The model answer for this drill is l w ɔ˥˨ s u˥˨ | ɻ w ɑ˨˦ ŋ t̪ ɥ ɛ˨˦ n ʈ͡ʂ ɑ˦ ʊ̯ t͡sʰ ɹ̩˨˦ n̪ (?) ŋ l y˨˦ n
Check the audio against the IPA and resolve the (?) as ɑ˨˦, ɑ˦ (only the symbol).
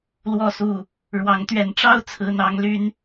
ɑ˨˦